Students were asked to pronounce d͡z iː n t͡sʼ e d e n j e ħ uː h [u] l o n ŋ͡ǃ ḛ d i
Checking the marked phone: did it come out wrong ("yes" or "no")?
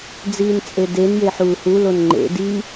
no